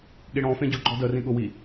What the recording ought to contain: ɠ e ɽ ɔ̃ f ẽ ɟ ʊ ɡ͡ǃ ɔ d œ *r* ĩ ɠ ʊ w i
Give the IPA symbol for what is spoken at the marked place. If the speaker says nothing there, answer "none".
r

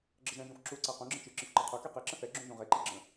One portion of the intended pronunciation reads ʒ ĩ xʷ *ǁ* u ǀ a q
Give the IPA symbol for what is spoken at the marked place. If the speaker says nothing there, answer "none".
ǁ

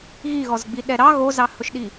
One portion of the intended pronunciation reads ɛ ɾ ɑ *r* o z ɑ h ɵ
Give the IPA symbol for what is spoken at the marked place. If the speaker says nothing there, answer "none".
ɣ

